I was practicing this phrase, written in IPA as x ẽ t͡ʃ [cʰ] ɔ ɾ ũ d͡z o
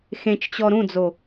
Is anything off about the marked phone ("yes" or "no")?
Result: yes